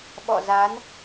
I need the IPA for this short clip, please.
ɓ ɔ̰˧˨ z a˨˦ n

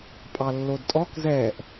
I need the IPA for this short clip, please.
pʼ ɑ lː o d tʼ ɔ k z ɛ ʔ

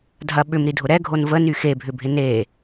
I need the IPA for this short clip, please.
dʱ ɐ ɓ ʏ m ɾ i dʱ ʊ ɾ ɛ ɡʱ o n v ə n y x e bʱ ʏ bʱ ɪ n e

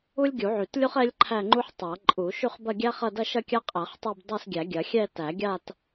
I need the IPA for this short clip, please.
u˥ lʲ ɡʲ u˨˩˦ ʕ y˨˩˦ t lʲ u˥ χ ɛ˥ lʲ ǃʰ æ˥˧ ŋ͡ǃ u˥ ħ tˤ a˨˩˦ ǃʼ u˨˩˦ ʃ y˥˧ χ b ɐ˥˧ ɡʲ æ˥ χ ɐ˥˧ d ɐ˥˧ ʃ ɐ˥˧ kʲ a˥ qʼ æ˨˩˦ χ tˤ a˥˧ b dˤ æ˥˧ s ɡʲ æ˨˩˦ ɡʲ ɐ˨˩˦ xʲ ɛ˥˧ t æ˨˩˦ ɡʲ a˥˧ t

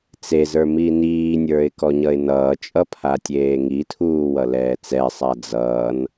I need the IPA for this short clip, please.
t͡s e z ə˞ m i n iː nʲ ə˞ ɪ̯ k ɔ ɲ ʌ ɪ̯ n ʌː t͡ʃʼ ʌ pʰ a tʲ eː ŋ i tʰ uː w ʌ l ɛː t͡s ɛ sˤ a d͡z ʌː n

